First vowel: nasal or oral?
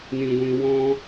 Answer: nasal